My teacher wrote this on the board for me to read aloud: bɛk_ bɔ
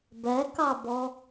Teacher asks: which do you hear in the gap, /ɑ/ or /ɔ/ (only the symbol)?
ɑ